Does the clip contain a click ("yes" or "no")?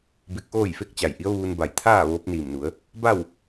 no